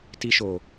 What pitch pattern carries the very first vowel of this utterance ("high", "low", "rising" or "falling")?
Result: high